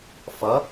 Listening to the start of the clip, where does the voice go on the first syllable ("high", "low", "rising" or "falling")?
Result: rising